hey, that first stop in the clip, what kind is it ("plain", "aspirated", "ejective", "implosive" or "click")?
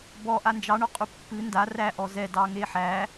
plain